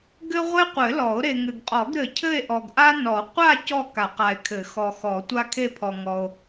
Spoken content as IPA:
ɡ ɘ˥ ʁʷ e˥ qʷ ɘ˨˩˦ l ɔ˨˩˦ o̯ ɾ e˨ ŋ ɘ˨ ɡ qʼ ɔ˨˩˦ ɡ ɾ ɘ˨ cʰ ɘ˥˧ e̯ ʔ ɔ˨ ɡ ʔ a˥ n ɔ˨˩˦ qʷ a˥˧ c ɔ˥˧ k a˨˩˦ q a˨ e̯ kʰ ɘ˨˩˦ x ɔ˨ x ɔ˨˩˦ tʷ a˥ kʰ e˥˧ pʰ ɔ˨ ŋ ɔ˨ o̯

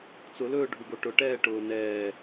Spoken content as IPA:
t͡s ʊ l ɵː ɖʱ u ɡ o ʈ ʊ ʈ ɛː ʈ ʊː n ɛː

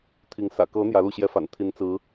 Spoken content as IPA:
t̪ʰ i˧˥ ŋ s ä̰˨˩ k ɤ˧˥ n̪ j ä˧˥ l u˥˩ ɕ j ɛ˥ f a̰˨˩ n t̪ʰ i˧˥ n t͡s ɹ̩˧˥

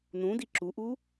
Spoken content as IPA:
n ũ d i ǁ u ʔ u

